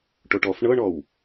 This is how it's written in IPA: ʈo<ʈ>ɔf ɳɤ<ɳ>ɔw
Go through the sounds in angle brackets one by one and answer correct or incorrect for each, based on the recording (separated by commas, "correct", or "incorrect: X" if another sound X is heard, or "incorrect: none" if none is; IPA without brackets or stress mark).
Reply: correct, correct